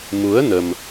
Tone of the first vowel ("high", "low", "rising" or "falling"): rising